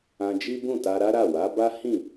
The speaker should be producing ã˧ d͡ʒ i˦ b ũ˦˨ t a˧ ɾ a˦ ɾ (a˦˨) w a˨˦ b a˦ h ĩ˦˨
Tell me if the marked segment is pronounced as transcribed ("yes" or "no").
yes